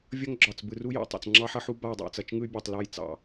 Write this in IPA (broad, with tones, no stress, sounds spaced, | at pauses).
vʲ ʌ˦ ŋ ɡ͡ǁ ɒ˨ t͡s b ɯ˨ r u˦ j ɑ̰˨ tˤ ɑ̰˨ t͡s ŋ͡ǁ ɑ˦ ħ ʌ˦ ħ u˦ b a˦˨ i̯ dˤ a̰˨ t͡s ʌ˨ t͡ʃ ŋ ɯ˦ y̯ bʲ ɑ˨ tˤ l ɒ˦˨ j t͡s ɑ̰˨